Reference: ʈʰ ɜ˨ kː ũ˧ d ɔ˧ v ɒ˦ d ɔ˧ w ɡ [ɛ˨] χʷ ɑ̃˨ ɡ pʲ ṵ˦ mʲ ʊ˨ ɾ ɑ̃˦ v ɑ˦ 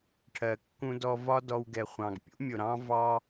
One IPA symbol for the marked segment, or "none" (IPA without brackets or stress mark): ɛ˨